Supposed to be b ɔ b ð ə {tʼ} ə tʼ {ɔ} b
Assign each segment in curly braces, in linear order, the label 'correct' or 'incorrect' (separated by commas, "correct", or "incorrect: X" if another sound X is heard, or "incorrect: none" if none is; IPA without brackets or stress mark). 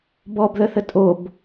incorrect: θ, incorrect: o